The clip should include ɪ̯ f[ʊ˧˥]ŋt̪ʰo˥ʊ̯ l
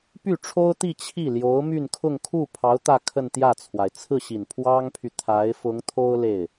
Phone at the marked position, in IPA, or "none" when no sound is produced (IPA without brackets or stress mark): ʊ˧˥